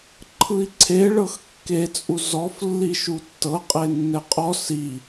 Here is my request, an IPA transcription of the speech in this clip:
ǃʰ ɯ i̯ ǀʰ e ɭ ɤ x kː e t͡sʼ u z ɔ f lː i ʃ u tː ɤ qʼ e nː ɛ qʼ ɔ s i

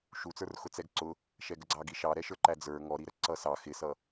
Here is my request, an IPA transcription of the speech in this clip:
ʃ u t͡s ə˞ r x ʊ t͡s ɛ ɡ ǀ ʊ | ʃ ɛ ɡ ə ɡ͡ǀ ɑ ɡ i ʃ ɑ ɾ ɛ ʃ ə˞ ǃ æ d͡z ə˞ ŋ ɔ ɾ i ɾ ə ǀ ʌ s ɑ x ɪ s ʌ

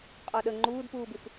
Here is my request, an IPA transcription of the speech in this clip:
qʼ ɔ ɗ ə ŋ͡ǃ uː d p uː b y f

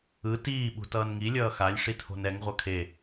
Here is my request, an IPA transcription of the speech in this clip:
ɯ t iː ɓ ṳ t ʌː n ŋ i lʲ ʌː x a lʲ ʂ i tʰ o̤ n ɛ ŋ ʁʷ ʌ kʰ e

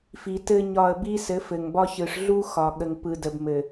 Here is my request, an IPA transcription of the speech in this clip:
f i˨ t ɘ˦ ɲ ɒ˦˨ ə̯ b i˦ s ɘ˨˦ f ɘ˨ ŋ b ɒ˦ ç ɯ˨ ʂ ɮ u˦ x ɒ˨ ɠ ə˨ ŋ p ɯ˨ d ə˨ b m ɘ˨

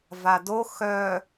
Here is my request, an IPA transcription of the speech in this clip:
v a d o x œ

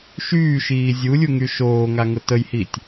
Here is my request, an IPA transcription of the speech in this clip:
ʃ yː ʃ iː zʲ u lʲ u ŋ y ʃ oː ŋ a ŋ ʊ t ə j h i tʲ

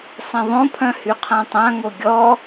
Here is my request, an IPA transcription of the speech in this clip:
sˤ ẽ ðˤ õ pʰ œ̃ h y qʰ ã tˤ ã ŋ o ɡʲ ɔ

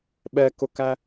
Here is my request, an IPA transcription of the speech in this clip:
ɓ ɛ k ʊ k æ

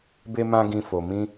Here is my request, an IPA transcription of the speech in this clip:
b e˦ m ã˦ ɡ ĩ˧ f o˨ m ĩ˧

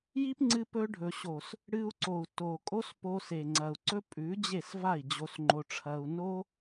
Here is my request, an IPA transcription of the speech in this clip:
j i˦ p ŋ͡ǀ ɨ˧ p ɵ˧ ɖʱ ɵ˨ ɕ o˨ s | ɽ ɨ˧ u̯ ǀ o˨ u̯ t o˨ kʼ o˦ s p o˧ s e˨ ŋ͡ǀ ɐ˨ u̯ ǀ ɵ˦ pʼ ʉ˨˦ d͡ʑ e˦˨ s v a˦˨ i̯ d͡ʑ o˧ s ŋ͡ǃ o˧ ʈ͡ʂʰ ɐ˧ u̯ n o˦

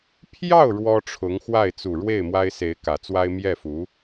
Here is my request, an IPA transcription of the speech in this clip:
pʰ j ɑ˥˩ ʊ̯ ɻ w ɔ˥ ʈ͡ʂʰ ʊ˧˥ ŋ x w a˥˩ ɪ̯ t͡s u˨˩ ɻ w e˥˩ ɪ̯ m w a˥ ɪ̯ s e˧˥ ɪ̯ k ä˨˩ t͡s w a˥ ɪ̯ m j ɛ˥˩ f u˧˥

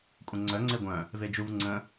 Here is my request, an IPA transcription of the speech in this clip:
kʷʼ ə̃ ŋ͡ǀ œ ŋ͡ǀ e ɡʷ œ̃ | v e d͡ʒ u v ŋ͡ǀ ə̃

